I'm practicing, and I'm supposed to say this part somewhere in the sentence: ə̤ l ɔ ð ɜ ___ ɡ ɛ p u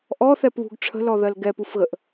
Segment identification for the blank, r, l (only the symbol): l